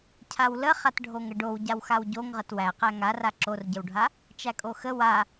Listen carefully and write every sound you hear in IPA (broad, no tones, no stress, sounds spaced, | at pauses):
cʰ a w l ə χ a t ɖʱ o ŋ ə ɖ o w ɟ a w x a w ɟ o ŋ ʁ ə t w æ q æ ŋ a r a ǁ o r ɟ ə w ɖʱ a | t͡ʃ æ kʼ o x ə w a